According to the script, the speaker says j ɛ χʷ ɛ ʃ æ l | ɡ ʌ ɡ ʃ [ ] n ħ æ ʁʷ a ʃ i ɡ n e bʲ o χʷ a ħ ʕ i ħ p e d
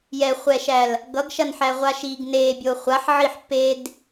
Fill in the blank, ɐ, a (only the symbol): ɐ